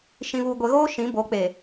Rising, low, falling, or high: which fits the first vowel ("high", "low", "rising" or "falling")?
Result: low